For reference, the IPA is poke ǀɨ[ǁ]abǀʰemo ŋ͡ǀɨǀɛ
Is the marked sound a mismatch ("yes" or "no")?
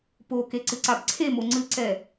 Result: yes